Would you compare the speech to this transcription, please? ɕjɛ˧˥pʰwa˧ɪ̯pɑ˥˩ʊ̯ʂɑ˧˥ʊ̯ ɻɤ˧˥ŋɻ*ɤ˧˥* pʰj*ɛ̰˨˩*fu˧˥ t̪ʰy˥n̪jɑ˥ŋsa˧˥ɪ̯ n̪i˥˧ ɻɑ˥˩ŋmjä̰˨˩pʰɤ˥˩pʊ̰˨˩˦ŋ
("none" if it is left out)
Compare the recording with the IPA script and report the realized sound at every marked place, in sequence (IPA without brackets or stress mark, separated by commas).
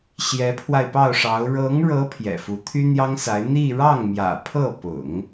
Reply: ɤ˧˥, ɛ̰˨˩